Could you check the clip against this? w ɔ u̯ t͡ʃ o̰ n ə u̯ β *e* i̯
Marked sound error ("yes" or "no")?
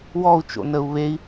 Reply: no